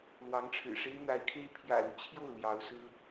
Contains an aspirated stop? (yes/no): yes